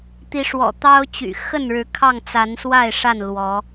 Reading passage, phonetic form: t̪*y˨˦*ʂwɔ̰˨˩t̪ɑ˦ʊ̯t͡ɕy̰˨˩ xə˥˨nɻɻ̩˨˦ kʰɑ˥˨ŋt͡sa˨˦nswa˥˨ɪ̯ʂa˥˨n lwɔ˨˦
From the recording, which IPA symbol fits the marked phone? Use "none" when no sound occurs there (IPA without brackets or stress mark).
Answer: i˨˦